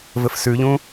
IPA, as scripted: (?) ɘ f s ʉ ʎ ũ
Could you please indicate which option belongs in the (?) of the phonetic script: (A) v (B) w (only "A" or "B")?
A